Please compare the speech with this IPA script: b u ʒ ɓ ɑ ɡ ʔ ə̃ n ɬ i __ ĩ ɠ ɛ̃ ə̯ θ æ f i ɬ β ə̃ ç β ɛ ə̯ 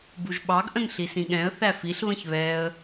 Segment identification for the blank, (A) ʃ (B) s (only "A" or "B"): B